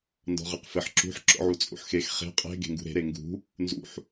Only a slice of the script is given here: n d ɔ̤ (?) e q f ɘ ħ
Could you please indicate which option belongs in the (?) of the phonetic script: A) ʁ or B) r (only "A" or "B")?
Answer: A